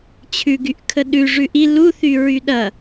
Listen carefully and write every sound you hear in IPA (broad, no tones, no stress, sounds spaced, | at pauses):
t͡ɕʰ ʉ ɡ y ʔ kʰ ə ɗ ʉ ʐ ʉ ʔ i l u θ y ɹ y ɗ ɐ